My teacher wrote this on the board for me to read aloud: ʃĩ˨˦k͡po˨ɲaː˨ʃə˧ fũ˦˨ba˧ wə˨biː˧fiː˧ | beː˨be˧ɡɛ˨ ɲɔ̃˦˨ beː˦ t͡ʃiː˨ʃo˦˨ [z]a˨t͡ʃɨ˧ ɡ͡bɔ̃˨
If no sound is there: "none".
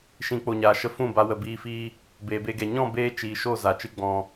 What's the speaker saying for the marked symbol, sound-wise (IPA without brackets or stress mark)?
z